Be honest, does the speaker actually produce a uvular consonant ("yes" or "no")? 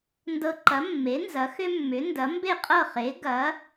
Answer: yes